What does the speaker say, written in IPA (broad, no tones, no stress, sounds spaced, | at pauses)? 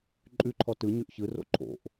ǃʼ ʉ ǃʰ ɔ t ɯ ɲ ʉ ʔ ç ɯ r o̰ ǃʰ o̰ ʔ